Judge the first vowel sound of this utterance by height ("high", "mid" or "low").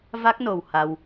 low